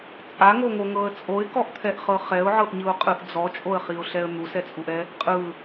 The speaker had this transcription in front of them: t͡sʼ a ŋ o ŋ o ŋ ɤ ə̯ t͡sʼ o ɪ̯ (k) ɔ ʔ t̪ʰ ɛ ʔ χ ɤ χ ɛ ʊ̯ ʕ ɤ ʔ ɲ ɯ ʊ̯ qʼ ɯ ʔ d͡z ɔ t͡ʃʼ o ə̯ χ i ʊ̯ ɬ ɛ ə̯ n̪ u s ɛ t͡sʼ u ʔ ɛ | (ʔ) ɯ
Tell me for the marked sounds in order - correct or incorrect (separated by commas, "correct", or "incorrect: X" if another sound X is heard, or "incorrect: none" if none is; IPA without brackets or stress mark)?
correct, incorrect: qʼ